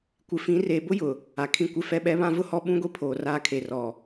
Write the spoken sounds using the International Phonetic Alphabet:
kʷ ɪ˨ f ĩ˨˦ r eː˨ b ʊ˦ j ʊ˨ | a˨ kʰ ĩ˦˨ kʷ ɪ˦˨ f ɛ˦ ɓ ɛ˦ β ã˦ v ʊ˦ h ɔ˦ ɓ ũ˦ ɡʷ i˦ pʰ oː˨ r aː˦ kʰ e˨ r ɔ˨

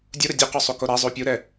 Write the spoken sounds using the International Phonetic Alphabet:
dʲ u ɾ ə dʲ ɔ q ɔ sˤ u k o ɾ a zˤ u pʲ u ɾ ɛ

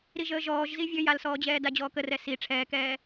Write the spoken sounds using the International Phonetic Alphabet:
ɾ i ʒ əː ʒ ɔː ʒ z i vʲ ø j a l s ɔː d͡ʑ ɛː d a d͡ʑ ɔː k ə r ɛ s i ʈ͡ʂʰ ɛː k ɛː

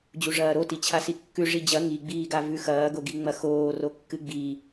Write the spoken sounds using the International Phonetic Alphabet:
d͡ʑ u ʐ ɐː ɾ o t i t͡ɕʰ a s i kː ʉ ʐ i d͡ʑ ɐ ŋ i ɡ͡b iː ɡ a v ʉ x ɐː ɡ o ɡ i ŋ͡m ɐ x oː r o kː ɨ ɡ͡b i

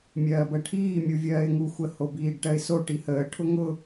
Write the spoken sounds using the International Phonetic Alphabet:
mʲ ɜː b ɜ ʈʰ iː mʲ u vʲ ɜː ɪ̯ ŋ u xʷ ə h o b iː ɖ ʈ ɜ ɪ̯ s o ʈ i h əː ʈʰ ʊ ŋ ʊ

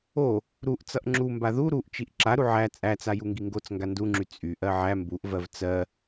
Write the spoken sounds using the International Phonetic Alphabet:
o | ɾ u ʔ t͡s ʌ ʔ ŋ͡ǁ u m b a ð u ɾ u ʔ t͡ʃ i ʔ ǁ a ɾ u ʕ æ t͡sʼ æ t͡s a j u ŋ ɡ i ŋ ɡ o t͡s ŋ ɡ a n d u ŋ͡ǁ y t͡sʼ y ʔ ɜ ʕ æ m b u ʔ v ɜ v t͡s ɜ

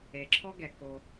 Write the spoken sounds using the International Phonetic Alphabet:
e˩ ǁʰ ɔ˥ ɡ ɛ˩ k o˩

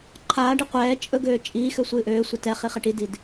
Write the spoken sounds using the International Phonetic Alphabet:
ǃʰ aː ɖ i qʷ ɛː t͡ʃʼ ɵ ɡ øː t͡ʃʼ iː x ø sʷ ɨː ʔ øː sʷ ɛ t ɛ χ i χ ɛ ʈ i d i d

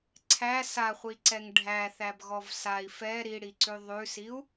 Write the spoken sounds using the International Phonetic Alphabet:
ǀʰ æ s a χʷ i ǀ ɛ ŋ ɖʱ æ θ æ b ɣ ɔ v s a i̯ f ɛ ɾ i ɽ i ǀ ʉ ðˤ ʉ s i u̯

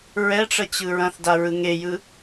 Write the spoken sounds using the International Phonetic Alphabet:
ɹ ɛ ʈ͡ʂ ə t͡ɕ ɯ ɹ ɐ̃ θ d a ɹ ɯ ŋ e j ɯ

